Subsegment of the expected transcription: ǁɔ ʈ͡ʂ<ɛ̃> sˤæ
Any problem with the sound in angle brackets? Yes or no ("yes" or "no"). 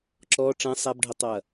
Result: no